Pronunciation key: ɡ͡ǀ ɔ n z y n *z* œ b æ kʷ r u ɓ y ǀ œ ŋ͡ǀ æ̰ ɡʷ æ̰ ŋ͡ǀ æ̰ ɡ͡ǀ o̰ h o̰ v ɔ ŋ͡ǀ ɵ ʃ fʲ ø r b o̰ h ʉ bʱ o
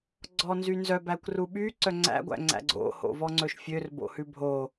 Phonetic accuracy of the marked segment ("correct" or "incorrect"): correct